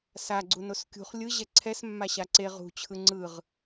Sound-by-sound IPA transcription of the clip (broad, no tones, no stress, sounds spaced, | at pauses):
s a ɡ͡ǀ u n o s kʲ ṳ χ lʲ ɯ ʑ ɛ ǀʰ ɛ s mː a ɕ a ǀ e ʁ ṳ t͡ɕʰ ɯ ŋ͡ǀ ɯ ʁ